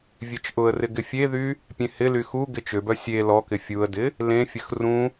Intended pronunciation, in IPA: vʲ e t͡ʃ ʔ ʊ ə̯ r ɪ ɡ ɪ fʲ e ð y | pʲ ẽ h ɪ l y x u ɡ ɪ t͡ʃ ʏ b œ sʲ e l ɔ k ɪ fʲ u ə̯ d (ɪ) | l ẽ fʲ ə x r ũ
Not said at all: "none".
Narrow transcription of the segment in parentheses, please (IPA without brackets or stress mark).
ɪ